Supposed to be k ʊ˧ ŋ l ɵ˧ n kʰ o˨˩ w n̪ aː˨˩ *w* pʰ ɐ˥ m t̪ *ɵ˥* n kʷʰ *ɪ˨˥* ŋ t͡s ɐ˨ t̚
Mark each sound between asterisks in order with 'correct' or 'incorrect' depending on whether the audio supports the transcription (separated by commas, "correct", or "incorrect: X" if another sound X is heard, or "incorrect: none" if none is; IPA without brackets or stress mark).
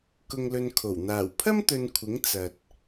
correct, incorrect: ɵ˧, correct